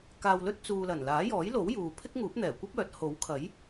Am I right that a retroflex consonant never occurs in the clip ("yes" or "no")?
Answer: yes